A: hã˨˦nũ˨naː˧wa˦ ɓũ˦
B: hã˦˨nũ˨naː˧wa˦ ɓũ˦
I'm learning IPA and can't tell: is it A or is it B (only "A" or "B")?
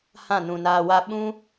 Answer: B